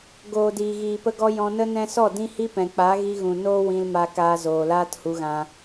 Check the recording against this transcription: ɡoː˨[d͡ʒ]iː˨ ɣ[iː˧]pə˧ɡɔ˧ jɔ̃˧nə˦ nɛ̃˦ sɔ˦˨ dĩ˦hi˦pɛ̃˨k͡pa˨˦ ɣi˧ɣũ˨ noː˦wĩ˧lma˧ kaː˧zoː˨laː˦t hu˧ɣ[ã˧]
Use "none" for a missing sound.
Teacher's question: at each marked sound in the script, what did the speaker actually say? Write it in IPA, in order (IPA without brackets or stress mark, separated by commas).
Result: d, iː˨, ã˧